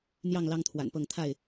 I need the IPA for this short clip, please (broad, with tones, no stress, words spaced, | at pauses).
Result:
n̪jɑ˥˨ŋ lɑ˦ŋt̪ʰwa̰˨˩npɤ˥˨ŋ t̪ʰa˥˨ɪ̯